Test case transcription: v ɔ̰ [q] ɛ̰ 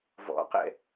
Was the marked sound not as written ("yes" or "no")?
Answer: no